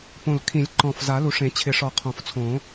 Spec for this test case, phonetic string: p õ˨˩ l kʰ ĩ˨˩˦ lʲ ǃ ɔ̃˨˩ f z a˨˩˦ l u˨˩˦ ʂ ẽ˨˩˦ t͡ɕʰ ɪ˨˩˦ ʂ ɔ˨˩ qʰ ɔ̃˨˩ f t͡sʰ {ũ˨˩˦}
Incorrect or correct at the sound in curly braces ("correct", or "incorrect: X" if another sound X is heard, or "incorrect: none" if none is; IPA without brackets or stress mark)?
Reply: incorrect: õ˨˩˦